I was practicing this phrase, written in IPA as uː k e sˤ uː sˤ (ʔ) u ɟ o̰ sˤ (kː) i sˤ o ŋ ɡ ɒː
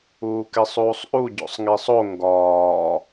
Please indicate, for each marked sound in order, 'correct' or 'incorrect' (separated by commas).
correct, incorrect